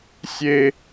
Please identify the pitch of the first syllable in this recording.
high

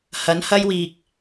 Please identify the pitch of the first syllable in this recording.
rising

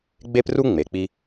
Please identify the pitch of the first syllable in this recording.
high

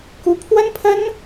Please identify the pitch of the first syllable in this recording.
high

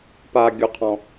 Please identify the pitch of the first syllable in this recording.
high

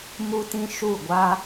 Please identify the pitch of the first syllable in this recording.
high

